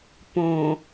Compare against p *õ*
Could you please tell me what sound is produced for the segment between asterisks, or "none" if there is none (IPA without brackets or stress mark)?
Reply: õ